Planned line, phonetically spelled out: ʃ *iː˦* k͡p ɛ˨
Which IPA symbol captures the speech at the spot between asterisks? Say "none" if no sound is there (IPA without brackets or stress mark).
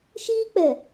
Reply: iː˦